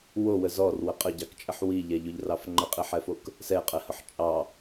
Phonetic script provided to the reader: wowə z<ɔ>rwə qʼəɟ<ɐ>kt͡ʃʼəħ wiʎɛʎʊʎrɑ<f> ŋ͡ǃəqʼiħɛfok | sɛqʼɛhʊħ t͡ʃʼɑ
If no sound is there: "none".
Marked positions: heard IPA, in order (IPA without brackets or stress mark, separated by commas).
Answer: ɔ, ɑ, f